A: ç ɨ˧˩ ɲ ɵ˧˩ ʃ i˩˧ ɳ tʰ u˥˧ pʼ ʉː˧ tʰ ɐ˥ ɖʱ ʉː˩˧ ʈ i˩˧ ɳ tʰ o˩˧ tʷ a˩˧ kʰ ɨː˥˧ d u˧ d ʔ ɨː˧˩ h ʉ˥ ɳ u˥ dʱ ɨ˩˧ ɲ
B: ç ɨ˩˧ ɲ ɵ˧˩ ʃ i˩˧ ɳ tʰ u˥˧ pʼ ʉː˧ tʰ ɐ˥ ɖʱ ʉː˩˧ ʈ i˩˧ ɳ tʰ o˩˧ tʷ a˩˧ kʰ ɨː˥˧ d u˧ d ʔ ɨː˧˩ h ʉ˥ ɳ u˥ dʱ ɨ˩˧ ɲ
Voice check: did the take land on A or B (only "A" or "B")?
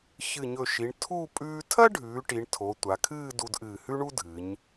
A